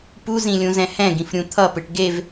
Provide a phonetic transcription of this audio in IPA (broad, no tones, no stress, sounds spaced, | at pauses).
p u z ĩ lʲ ũ z ɛ̃ h ɛ̃ ɡ ĩ f ɾʲ ũ t̪ʰ ʌ p ɯ ʈ ɡ e v